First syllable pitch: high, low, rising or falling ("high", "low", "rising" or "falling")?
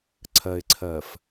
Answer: low